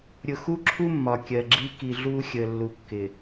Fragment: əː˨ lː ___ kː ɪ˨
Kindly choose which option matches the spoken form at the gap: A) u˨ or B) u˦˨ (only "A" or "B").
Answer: A